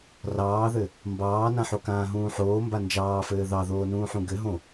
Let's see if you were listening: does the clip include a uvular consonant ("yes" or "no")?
no